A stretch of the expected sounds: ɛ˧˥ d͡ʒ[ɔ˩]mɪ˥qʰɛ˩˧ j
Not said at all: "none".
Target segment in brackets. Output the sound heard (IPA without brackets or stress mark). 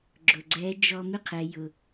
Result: ɔ˧